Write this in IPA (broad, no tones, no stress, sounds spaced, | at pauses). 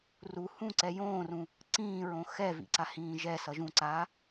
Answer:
r u h ũ ǀ ɛ j õː r ũ | ǀ ĩː ɹ õ x ɛ v ḭ ǀ a h ĩː ʒ ɛ s ʌ ʒ ũ ǀ aː